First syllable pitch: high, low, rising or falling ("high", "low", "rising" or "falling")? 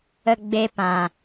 high